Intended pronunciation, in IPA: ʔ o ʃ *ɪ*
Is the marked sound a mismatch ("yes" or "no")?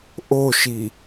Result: yes